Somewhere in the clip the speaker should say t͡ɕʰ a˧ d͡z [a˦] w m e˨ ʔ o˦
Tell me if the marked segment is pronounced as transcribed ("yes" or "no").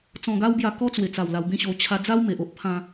yes